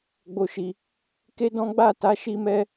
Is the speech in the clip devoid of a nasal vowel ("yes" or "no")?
no